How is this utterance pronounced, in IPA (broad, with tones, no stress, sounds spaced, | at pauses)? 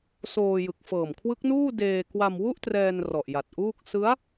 s oː˧ j ɯ˨˩ k̚ f ɤː˨˩ m kʰ w ɯ˦˥ k̚ n uː˥˩ d eː˧ k w a˧ m w u˥˩ ʔ t r ɛː˧ n r ɔ˨˩ ʔ j a˨˩ t̚ ʔ uː˥˩ k̚ s ɯ˦˥ a̯